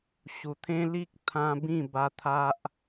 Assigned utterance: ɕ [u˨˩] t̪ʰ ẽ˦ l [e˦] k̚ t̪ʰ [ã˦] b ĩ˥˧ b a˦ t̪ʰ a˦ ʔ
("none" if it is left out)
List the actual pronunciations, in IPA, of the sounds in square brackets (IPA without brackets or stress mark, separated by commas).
u˨˩, i˦, ã˦